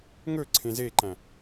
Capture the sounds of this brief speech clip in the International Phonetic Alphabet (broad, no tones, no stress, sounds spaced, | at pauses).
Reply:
ŋ ɵ ǀʰ ẽ z e ǃ æ̃